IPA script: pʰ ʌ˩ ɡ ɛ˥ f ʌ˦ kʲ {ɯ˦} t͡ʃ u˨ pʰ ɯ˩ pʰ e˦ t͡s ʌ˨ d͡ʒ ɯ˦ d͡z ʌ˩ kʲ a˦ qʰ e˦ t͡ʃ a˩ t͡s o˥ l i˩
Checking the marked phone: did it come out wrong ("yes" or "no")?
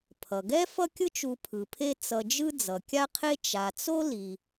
no